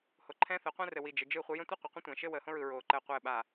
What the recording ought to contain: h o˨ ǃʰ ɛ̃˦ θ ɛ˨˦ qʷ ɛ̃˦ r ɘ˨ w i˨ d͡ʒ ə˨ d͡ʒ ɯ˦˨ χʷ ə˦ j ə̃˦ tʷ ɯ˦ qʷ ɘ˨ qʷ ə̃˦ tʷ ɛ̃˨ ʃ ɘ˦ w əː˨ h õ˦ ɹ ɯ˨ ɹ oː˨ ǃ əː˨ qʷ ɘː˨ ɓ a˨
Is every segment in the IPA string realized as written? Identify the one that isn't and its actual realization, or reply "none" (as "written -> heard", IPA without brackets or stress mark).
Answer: none